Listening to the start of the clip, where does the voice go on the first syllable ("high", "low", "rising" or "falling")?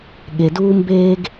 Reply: low